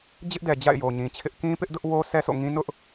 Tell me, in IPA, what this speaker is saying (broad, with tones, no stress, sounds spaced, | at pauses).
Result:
d͡ʑ ɪ˦ ʔ d ɛ˨ d͡ʑ a̰˦˨ ɪ̯ j o˨ ɲ ĩ˨ t͡ɕʰ ɪ˦ ʔ k ĩ˦ p ɪ˦ ʔ d ʊ˦ ʔ w o˦ sʰ ɛ˦ s o̰˦˨ ŋ ĩ˦ n ʊ˦ ʔ